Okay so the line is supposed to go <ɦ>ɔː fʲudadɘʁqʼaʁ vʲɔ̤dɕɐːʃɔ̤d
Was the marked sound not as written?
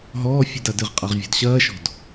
no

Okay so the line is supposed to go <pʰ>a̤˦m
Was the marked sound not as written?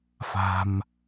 yes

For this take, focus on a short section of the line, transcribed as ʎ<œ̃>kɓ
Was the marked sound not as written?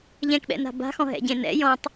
yes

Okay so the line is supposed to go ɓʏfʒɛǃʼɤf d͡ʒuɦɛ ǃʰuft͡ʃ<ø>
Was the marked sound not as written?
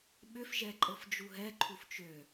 no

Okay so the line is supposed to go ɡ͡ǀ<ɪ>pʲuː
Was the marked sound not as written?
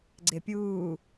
no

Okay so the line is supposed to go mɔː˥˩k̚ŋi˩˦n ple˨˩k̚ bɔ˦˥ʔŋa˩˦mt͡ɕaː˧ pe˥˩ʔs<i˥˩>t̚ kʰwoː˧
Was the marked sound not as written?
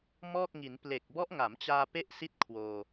no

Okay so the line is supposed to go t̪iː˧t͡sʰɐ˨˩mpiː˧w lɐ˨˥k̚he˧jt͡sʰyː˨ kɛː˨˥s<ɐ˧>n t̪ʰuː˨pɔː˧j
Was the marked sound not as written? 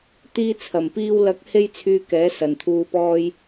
yes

